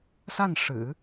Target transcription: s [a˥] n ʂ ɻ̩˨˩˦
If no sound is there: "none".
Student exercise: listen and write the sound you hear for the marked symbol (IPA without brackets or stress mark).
a˥˩